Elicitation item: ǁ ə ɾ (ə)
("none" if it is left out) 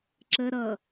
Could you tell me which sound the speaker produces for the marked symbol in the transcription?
ʌ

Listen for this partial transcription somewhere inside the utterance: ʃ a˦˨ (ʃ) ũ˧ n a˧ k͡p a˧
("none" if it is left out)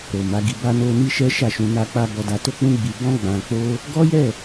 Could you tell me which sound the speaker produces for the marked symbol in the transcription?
ʃ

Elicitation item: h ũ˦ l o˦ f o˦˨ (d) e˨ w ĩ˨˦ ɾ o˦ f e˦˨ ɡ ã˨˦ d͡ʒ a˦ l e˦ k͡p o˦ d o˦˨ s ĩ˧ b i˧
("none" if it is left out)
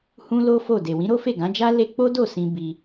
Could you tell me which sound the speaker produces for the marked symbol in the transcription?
d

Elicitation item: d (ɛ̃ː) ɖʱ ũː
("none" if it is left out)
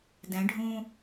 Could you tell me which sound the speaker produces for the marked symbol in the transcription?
ɛ̃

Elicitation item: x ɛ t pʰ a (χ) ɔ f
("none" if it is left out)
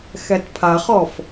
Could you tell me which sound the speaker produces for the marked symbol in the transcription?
χ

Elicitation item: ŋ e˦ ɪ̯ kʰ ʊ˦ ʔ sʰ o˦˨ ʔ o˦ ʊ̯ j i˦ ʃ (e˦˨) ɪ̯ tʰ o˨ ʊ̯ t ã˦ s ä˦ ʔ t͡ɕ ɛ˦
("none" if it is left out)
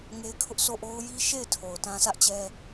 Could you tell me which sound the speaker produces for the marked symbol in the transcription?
e˦˨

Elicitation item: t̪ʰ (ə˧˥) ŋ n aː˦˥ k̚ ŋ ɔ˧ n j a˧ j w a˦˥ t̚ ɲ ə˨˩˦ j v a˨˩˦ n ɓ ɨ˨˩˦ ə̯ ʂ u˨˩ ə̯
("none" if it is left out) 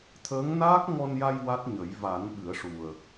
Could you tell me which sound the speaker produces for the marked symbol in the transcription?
əː˧˥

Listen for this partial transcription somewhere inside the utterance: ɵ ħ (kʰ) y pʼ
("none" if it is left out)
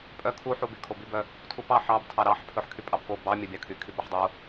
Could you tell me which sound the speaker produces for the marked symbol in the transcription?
kʰ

